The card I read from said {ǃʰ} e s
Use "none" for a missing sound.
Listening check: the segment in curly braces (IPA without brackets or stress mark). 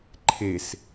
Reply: ǃʰ